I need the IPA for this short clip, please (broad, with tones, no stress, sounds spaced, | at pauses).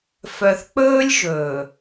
f œ˨ θ k͡p ɵː˦ lʲ ʒ ɵː˨